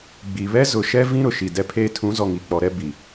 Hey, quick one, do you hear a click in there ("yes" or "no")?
no